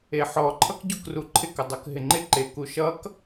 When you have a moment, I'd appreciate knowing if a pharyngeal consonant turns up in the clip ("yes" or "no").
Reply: yes